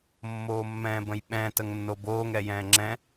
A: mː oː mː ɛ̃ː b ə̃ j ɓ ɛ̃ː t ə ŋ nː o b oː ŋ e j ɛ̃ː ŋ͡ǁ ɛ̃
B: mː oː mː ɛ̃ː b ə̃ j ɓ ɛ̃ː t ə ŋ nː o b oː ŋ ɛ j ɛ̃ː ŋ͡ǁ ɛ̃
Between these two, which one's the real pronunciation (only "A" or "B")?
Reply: B